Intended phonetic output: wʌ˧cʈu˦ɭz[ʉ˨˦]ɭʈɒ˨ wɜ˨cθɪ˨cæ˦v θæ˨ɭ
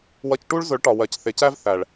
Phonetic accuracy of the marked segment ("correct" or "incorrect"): incorrect